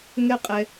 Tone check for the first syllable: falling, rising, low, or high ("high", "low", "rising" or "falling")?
high